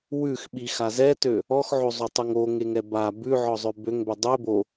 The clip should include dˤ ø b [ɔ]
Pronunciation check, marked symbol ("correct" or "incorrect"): incorrect